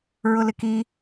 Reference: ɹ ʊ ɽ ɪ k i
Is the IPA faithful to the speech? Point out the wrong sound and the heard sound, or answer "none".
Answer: ɽ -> l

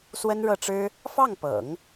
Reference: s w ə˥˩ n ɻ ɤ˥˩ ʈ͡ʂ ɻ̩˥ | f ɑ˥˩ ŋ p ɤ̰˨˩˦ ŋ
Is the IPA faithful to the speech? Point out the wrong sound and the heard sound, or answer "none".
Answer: ə˥˩ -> ə˥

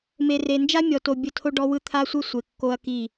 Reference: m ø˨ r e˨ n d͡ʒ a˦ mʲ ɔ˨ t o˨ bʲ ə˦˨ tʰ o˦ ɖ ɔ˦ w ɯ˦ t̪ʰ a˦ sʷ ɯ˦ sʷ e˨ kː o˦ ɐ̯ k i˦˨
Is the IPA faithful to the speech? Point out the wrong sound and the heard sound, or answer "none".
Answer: ø˨ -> e˨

